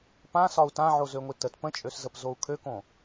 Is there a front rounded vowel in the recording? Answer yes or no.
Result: yes